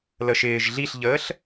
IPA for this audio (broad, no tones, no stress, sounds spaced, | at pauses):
l ə ʃ ɪː ʒ ɮ i ɬ ʎ əː ɬ